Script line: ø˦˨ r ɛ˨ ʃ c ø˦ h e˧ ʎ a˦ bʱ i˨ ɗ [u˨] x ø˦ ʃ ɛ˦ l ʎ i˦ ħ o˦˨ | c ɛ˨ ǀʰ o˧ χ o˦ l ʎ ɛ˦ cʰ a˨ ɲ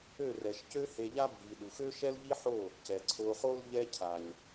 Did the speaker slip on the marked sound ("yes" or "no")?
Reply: no